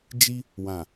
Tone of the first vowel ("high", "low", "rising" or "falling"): high